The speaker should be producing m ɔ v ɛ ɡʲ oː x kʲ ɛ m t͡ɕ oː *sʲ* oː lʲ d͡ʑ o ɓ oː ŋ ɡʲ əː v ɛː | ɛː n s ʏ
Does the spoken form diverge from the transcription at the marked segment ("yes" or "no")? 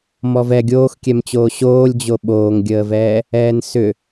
yes